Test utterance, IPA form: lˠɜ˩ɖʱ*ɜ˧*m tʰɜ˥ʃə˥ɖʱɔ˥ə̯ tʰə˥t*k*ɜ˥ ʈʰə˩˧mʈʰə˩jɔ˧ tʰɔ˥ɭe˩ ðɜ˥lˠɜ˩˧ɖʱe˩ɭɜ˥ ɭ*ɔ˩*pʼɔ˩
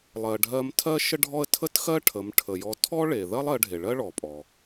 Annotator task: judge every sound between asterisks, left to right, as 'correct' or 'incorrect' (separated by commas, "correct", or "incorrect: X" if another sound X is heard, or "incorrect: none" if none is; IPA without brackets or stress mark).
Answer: correct, incorrect: x, correct